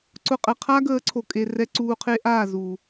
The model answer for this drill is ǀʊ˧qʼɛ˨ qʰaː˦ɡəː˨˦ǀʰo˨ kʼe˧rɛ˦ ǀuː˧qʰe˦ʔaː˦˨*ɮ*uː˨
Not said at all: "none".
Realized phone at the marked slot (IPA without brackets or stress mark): z